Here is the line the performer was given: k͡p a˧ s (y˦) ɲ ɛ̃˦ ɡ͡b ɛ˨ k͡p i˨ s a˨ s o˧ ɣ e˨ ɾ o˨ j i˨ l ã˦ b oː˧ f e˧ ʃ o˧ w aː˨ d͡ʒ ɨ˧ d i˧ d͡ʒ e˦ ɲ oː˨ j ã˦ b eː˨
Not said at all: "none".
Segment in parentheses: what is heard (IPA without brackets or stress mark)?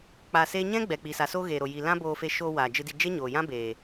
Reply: e˦